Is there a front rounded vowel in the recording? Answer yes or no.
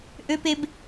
yes